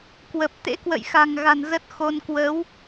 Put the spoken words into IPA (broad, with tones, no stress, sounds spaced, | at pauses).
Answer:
k w ə˨˩ p̚ t̪ ḛ˧˥ k w ə̰˧˨ j x a̤˨˩ ŋ ɣ a̤˨˩ n z ə˦˥ t̚ x o˧ n k w ə˨˦ w